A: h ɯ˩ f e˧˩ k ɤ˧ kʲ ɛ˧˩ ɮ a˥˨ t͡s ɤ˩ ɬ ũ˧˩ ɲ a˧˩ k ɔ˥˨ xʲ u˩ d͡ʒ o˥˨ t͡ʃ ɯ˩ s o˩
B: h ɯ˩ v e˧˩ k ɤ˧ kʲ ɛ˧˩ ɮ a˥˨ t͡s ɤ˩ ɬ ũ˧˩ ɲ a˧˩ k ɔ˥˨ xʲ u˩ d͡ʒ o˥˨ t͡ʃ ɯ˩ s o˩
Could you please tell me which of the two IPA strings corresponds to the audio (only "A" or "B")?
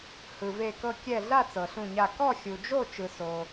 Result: B